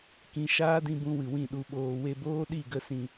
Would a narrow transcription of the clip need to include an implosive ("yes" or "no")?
yes